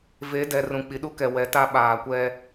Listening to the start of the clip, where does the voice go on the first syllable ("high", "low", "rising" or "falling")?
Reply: rising